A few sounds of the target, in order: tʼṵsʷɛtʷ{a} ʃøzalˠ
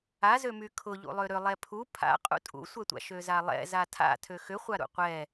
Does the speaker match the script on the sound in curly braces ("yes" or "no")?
no